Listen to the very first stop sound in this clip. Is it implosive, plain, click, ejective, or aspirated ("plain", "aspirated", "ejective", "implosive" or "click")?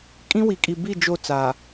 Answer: ejective